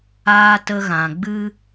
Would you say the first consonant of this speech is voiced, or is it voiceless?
voiceless